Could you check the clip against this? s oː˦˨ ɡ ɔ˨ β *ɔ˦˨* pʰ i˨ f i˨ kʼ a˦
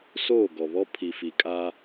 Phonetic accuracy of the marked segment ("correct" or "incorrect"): incorrect